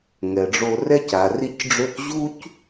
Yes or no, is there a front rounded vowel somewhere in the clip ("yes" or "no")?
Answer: yes